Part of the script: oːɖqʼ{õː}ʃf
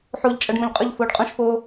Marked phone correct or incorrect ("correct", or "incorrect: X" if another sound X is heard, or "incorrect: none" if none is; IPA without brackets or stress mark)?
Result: incorrect: õ